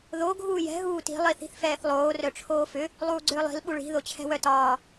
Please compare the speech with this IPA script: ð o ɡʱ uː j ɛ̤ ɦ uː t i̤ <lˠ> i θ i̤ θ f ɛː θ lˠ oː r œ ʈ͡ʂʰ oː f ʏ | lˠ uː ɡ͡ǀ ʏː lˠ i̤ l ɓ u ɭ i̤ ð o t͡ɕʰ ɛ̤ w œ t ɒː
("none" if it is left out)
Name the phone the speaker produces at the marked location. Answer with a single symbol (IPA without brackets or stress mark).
lˠ